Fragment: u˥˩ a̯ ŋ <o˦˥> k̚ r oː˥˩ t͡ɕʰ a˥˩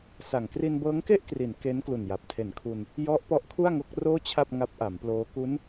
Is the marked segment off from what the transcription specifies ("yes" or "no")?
no